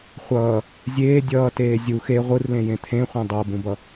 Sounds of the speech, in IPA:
χʷʌː | zʲeː dʲʌːteː zʲux e ʁʷɯrlẽjẽ t̪ʰẽχʷẽ dˤobũbʌ

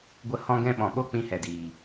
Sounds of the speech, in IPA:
ɡʷə˦˨ hɔ̃˦ɡɛ̃˦ɓɔ̃˨ ɓo˦k͡pĩ˧ hɛ˨diː˨

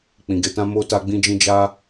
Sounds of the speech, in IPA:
k͡pĩ˨ ɡe˧tã˦ mo˦ta˦ɡ͡bĩ˦d͡ʒĩ˦ d͡ʒa˦

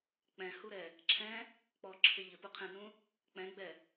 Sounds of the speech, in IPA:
k͡pɛ̃huɾɛ | ǁʰɛ̃ | k͡pɔǁʰɪ ʎɪpuqʰɛ̃nũ | k͡pɛ̃ɡ͡bɛ

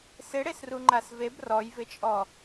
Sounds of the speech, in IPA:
sɪɽesruŋ͡ǃas veb rɔjvɪt͡ʃʼɔ

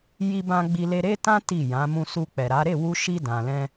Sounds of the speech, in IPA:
ji˧bã˧ ɡ͡bi˧le˧ɾe˦tã˦ ti˦˨jã˨˦ mũ˧su˧k͡pɛ˨ɾa˨˦ ɾe˦˨wu˧ʃi˧ dã˨lɛ̃˧

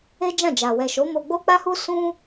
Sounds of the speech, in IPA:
e˦d͡ʒã˦˨d͡ʒa˨ wɛ˨ʃo˨˦ mo˧ɡ͡bo˦k͡pa˦hu˦ sũ˦

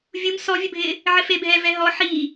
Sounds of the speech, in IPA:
vʲum sɔvʲəbʱɪː | ʕɪfebʱɛ vɛɦɔ ħi

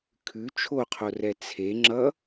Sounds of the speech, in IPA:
kʰʉ t͡ʃʰoqʰorɛ t͡sʰe ŋ͡ǁʌ

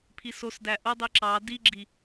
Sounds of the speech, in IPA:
pʰisos dæʔo dˤiǁɑ diɡ͡ǁi

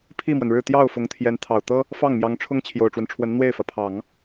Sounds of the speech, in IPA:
pʰi˥˩mwə˩nɻɻ̩˥˧ t̪jɑ˥˩ʊ̯ fʊ˧˥ŋt̪ʰjɛ˧˥n t̪ʰɑ˨˩ʊ̯t̪ɤ˥ | fɑ˥˩ŋmjɑ˧˥ŋʈ͡ʂʰʊ˥ŋ t͡ɕʰjo˨˩ʊ̯ʈ͡ʂwə˦nʈ͡ʂʰwə˧˥n n̪we˥˩ɪ̯fä˩pʰɑ˨˩˦ŋ

